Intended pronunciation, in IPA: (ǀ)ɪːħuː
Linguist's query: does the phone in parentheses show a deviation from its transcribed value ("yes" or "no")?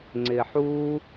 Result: yes